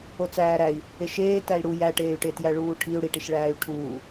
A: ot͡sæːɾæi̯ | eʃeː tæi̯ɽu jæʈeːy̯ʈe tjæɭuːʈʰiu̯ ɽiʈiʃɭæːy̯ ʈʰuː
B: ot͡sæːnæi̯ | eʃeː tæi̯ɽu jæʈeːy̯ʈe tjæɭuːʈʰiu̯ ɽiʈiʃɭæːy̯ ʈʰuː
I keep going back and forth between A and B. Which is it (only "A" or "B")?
A